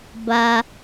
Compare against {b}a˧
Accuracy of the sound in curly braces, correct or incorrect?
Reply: correct